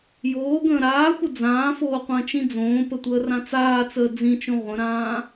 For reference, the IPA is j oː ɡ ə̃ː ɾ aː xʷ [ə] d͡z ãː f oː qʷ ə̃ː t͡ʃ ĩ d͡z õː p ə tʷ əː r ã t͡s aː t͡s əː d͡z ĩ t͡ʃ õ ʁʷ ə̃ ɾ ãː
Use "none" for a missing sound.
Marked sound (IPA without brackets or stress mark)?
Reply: ə